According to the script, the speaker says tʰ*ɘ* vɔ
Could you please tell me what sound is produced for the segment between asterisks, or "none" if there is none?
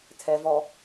ɛ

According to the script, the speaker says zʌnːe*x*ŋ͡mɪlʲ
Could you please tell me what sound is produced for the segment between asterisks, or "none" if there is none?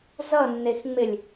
x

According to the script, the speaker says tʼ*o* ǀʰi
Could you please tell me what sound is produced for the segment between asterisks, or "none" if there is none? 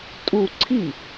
u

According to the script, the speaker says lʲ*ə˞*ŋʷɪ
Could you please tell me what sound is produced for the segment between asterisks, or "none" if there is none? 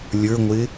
ə˞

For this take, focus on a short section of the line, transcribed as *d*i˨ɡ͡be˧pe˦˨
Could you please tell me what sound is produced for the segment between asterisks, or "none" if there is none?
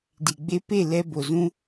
d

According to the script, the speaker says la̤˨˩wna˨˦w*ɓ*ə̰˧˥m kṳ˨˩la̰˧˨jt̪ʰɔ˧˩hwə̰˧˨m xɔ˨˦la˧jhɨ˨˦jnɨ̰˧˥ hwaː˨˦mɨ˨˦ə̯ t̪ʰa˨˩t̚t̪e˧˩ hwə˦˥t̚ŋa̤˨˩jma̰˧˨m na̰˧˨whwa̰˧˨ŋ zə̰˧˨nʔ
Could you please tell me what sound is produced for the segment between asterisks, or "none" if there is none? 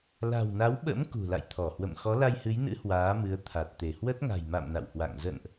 ɓ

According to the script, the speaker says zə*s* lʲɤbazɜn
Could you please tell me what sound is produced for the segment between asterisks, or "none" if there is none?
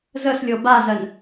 s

